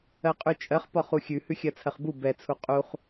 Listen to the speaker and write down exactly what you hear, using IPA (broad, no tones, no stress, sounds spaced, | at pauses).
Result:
ɜ qʼ ʉ t͡ʃʼ ɜ χ p ɒ χ u xʲ ʉ h ʉ xʲ ɜ t͡sʰ ɜ χ b u b ɛ t͡sʰ u qʼ u χ